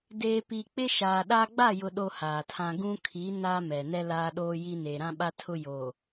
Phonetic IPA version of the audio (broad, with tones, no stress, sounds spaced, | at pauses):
d eː˨ p i˨ k͡p ɪ˦ ʃ aː˨ ɗ a˦ ɡ͡b a˦˨ j ʊ˨ ɗ o˦ h aː˨ tʰ ã˦ ɡ ũ˦ kʰ i˨˦ n aː˦ m ɛ˨ n ɛ˦ l aː˦ ɗ oː˦ j i˦ n e˨ ɾ ã˦ ɓ a˦ tʰ ʊ˦ j oː˨